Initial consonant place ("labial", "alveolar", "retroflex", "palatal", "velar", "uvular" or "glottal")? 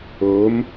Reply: labial